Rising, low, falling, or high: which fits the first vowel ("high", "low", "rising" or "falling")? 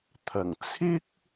low